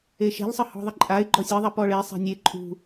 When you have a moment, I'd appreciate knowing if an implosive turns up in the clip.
no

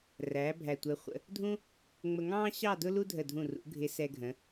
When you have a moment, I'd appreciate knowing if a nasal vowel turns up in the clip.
yes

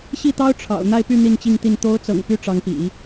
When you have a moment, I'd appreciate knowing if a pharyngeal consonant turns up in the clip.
no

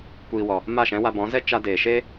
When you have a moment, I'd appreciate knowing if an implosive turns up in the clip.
no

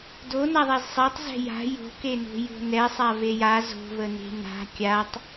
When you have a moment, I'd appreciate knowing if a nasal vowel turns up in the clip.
no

